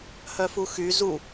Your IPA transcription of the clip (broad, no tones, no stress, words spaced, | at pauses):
hœfuxy zu